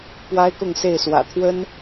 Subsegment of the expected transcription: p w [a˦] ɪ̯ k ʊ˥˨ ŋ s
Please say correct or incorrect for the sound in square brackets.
correct